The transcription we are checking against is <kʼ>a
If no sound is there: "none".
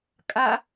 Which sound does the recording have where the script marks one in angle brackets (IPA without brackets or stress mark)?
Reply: kʼ